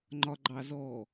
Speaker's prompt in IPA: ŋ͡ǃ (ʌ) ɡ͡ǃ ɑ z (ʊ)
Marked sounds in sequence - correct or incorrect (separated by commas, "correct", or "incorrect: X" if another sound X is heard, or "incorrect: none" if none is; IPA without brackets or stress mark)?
incorrect: ɒ, incorrect: ɔ